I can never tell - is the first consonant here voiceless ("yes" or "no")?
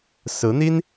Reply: yes